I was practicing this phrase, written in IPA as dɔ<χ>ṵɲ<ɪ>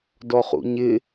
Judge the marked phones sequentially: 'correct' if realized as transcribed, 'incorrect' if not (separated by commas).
correct, correct